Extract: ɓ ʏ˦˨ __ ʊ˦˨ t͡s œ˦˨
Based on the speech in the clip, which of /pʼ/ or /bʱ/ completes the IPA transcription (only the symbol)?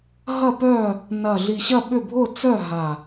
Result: bʱ